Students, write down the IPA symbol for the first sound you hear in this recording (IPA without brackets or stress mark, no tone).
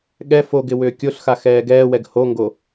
ɠ